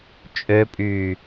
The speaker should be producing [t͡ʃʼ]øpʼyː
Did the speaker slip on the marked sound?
no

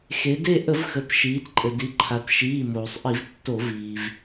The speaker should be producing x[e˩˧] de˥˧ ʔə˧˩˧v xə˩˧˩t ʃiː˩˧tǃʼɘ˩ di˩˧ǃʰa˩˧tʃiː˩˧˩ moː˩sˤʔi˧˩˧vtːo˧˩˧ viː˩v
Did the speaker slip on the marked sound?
no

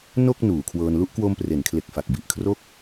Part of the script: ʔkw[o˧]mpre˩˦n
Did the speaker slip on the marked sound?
no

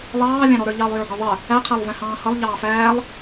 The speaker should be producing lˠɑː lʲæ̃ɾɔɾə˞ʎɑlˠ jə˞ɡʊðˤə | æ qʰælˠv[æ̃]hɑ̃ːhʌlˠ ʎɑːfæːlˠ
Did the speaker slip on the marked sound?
no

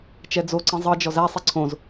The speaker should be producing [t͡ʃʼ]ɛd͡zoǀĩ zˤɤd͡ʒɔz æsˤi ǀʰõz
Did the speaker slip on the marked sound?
yes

